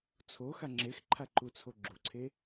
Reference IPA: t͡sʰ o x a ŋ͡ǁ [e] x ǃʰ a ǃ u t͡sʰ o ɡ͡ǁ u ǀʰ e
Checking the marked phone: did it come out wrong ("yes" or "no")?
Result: no